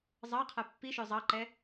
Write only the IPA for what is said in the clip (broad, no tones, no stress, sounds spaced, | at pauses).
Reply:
zˤ ɑ qʰ æ pː i ʃ œ zˤ ɑ ǃ ɛ